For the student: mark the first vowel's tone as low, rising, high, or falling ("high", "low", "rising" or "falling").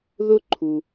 high